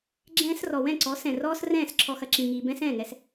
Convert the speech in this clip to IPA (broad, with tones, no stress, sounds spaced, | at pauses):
ɡ͡ǁ ɛ̃ː˧ s r ɔ˨ w ɛ̃˦˨ ǀ ɔ˨˦ s ɛ̃˨ r ɔː˦ s r ɛ̃ː˦˨ s ǁʰ ɔ˧ x ɐ˨ ǁ ĩ˨ ŋ iː˨ b ɛ̃˦ s ɛ̃ː˦˨ ŋ ɛ˧ s